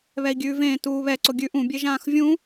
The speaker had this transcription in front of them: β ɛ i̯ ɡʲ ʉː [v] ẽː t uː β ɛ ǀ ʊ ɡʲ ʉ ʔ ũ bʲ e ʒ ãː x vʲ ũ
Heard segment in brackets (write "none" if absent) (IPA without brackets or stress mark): v